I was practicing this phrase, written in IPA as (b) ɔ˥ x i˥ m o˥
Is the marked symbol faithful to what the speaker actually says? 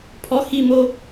no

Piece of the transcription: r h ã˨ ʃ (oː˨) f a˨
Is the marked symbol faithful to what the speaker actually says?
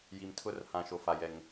no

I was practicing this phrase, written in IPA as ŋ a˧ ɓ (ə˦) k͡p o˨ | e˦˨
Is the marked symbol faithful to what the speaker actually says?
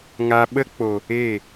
yes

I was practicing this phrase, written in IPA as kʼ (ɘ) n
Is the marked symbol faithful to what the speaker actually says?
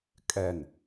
no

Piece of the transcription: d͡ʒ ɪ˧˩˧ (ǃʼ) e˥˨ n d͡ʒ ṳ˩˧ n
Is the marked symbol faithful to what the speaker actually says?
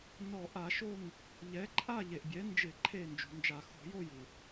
no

